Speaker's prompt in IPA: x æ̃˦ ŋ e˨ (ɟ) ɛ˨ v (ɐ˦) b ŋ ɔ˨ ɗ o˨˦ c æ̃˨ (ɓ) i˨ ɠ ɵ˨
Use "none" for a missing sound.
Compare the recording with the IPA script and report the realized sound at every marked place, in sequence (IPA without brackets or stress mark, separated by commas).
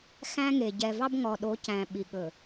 ɟ, ɑ˦, ɓ